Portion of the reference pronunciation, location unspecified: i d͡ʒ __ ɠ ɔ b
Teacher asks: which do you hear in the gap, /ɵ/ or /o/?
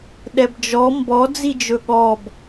ɵ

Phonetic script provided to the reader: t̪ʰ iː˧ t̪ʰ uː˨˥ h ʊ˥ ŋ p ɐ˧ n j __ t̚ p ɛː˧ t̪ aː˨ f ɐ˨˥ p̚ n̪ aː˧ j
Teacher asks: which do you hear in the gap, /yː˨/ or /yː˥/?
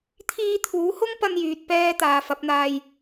yː˨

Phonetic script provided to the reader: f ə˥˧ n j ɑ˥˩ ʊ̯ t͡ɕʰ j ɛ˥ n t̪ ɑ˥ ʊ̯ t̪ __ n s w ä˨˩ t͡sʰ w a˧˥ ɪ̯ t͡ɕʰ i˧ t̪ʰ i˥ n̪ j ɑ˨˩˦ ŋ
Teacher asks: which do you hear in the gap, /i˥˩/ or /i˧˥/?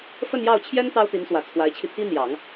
i˧˥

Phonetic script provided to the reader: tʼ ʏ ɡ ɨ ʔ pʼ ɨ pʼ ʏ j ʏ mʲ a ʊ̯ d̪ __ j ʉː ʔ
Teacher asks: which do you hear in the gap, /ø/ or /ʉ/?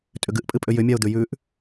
ʉ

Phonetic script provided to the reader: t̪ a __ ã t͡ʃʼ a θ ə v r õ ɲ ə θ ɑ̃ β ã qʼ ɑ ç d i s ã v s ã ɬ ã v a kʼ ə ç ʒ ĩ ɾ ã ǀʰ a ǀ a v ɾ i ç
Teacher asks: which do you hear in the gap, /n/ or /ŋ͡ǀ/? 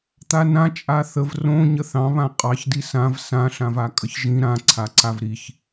n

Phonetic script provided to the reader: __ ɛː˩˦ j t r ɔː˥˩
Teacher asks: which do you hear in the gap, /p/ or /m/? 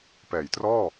p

